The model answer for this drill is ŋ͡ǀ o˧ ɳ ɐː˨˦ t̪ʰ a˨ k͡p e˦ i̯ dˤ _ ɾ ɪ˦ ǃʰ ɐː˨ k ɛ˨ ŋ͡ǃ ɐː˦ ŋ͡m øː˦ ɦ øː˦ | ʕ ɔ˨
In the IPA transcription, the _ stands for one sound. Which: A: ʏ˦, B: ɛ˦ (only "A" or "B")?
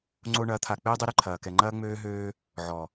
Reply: A